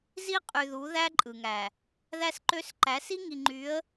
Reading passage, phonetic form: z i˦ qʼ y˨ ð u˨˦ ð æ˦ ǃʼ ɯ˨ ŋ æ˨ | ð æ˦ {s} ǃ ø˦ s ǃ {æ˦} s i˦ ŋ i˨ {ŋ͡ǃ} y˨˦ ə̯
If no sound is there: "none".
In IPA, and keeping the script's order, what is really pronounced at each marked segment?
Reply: s, æ˨˦, ŋ͡ǃ

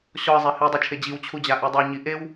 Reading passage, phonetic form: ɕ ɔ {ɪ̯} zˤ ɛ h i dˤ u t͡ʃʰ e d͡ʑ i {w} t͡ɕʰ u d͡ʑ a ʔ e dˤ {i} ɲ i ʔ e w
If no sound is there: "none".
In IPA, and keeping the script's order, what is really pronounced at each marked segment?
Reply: ə̯, w, e

